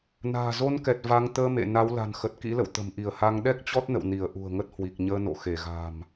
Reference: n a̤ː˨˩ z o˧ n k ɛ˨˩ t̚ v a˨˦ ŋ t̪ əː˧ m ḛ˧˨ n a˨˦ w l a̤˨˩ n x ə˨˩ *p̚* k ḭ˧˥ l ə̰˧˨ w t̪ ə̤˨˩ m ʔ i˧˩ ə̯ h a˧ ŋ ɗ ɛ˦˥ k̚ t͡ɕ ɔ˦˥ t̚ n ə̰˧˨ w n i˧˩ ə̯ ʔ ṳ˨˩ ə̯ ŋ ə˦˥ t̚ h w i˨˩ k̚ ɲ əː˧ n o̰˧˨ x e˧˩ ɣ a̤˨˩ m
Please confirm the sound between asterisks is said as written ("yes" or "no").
no